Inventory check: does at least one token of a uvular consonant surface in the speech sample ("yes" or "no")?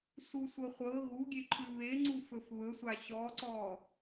yes